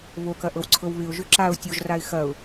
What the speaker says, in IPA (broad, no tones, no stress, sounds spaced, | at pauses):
β o k ɐ ʔ ɤ w ǀʰ ɤ w β ɪ ʊ̯ ʒ ø ǁ a ʊ̯ tʲ o ʒ r a ɪ̯ x ɐ ʊ̯